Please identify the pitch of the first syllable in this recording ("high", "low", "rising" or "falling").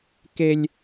high